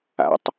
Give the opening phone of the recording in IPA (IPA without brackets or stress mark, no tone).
a̰